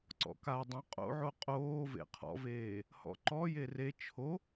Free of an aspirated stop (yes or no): no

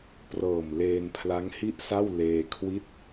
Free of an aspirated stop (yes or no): no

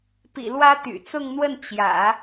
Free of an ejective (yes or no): yes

